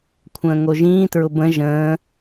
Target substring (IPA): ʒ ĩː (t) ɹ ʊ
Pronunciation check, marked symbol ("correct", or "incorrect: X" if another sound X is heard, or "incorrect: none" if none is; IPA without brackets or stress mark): correct